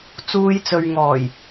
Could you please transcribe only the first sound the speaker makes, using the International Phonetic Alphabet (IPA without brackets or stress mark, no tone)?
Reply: t͡s